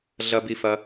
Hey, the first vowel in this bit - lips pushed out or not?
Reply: no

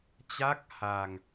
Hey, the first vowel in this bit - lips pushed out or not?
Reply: no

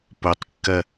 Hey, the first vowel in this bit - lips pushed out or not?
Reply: yes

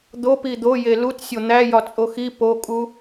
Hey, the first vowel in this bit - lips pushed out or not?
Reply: yes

